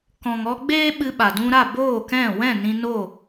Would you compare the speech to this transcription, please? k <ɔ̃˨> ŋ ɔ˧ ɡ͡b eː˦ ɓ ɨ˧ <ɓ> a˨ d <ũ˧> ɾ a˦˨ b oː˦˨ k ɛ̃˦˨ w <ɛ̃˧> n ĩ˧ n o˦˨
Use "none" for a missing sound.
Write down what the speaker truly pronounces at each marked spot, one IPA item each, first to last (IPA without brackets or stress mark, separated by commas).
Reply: ɔ̃˨, ɓ, ũ˧, ɛ̃˦˨